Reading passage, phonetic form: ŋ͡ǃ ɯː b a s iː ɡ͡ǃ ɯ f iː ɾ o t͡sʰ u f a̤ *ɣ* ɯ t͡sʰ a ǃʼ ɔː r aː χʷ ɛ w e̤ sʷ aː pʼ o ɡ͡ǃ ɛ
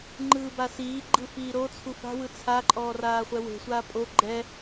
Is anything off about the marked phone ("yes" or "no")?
yes